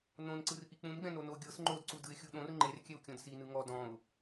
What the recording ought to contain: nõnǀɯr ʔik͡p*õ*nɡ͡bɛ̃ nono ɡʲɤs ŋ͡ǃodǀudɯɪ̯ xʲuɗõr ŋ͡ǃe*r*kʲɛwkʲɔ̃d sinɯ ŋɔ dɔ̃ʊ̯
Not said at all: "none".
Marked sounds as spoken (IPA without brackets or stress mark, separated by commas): ũ, r